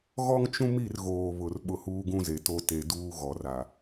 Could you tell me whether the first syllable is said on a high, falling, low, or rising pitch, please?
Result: high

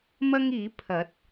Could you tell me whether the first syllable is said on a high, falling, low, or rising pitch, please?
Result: high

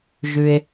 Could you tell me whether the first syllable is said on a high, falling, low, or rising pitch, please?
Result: low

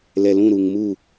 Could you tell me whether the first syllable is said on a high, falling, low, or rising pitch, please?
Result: low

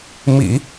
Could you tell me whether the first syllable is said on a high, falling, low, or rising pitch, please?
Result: low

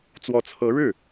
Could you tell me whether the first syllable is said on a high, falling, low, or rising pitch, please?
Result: rising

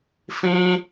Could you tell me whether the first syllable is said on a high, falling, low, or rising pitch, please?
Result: high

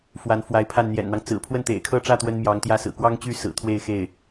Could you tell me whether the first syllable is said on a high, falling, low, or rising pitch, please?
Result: rising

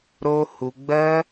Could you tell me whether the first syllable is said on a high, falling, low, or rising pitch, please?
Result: high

